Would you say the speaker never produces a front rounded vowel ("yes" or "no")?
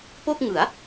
yes